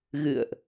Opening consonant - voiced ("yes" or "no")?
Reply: yes